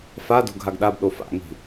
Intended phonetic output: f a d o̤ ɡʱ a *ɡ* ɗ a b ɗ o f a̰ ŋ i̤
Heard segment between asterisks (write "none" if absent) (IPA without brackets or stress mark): ɡ